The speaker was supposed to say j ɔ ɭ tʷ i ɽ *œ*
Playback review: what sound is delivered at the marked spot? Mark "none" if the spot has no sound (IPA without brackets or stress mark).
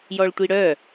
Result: œ